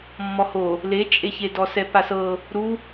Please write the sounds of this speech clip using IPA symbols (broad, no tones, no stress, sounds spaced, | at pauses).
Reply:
mː ɔ h o | l e t͡ʃʼ e ç e d ɔ s ɛ p a s ɤ | ɾ u